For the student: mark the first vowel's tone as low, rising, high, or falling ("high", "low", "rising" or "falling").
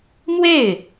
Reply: falling